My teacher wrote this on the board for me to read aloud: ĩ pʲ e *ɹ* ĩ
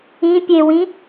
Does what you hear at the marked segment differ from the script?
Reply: yes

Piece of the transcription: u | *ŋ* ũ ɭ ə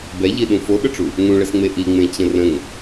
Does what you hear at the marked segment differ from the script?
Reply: no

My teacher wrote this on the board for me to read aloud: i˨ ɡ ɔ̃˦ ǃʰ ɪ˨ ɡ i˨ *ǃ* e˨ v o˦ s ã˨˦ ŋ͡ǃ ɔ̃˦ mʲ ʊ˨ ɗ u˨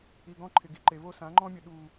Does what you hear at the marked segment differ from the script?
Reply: no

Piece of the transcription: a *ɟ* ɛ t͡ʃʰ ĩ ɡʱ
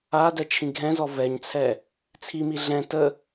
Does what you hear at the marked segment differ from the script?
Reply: yes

